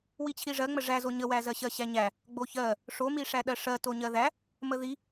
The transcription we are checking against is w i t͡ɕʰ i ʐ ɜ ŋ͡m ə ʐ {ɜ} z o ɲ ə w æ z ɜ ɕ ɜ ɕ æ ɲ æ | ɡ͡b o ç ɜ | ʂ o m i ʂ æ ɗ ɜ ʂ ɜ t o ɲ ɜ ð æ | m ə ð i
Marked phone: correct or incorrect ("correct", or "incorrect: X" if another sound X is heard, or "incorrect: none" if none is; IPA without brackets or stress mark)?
incorrect: æ